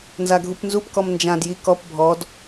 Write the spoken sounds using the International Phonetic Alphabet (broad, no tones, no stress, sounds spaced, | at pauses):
n z a ɡʱ u p n z u p k ɔ m n d͡ʒ ã d j i k ɔ p bʱ ɔ d